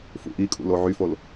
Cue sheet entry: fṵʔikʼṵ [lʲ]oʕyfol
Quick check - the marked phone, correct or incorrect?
incorrect